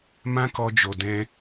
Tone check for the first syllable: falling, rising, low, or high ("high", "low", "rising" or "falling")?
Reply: high